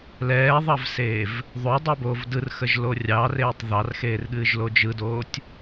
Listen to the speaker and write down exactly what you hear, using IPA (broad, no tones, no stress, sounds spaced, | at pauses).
l ɛː ðˤ ɑ v s eː v | ðˤ o dˤ i b oː v d ɯ r x ə ʒ l o rʲ ɑ r eː tˤ ð ɑ r x eː r ɠ ɨː ʒ l o d͡ʒ ɯ d oː tʲ